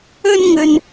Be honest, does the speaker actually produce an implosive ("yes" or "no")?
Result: no